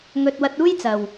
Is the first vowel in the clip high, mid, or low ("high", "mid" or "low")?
mid